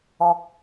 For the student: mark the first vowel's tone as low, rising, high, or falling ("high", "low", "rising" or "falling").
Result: low